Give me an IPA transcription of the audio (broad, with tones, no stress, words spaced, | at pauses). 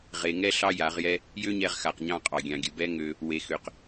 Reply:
ʁe˨ŋɛ˦ ɬɑ˦ja˨˦ʁjɛ˦ | jø˦ɲɛ˧ʁ xa˨qɲɑ̃˦˨ qʼɑ˨ɡʲɑ̃˨ɡʲə˨ bɛ˦ ŋø˧ | we˨xø˨q